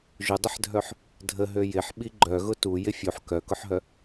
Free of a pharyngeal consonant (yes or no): no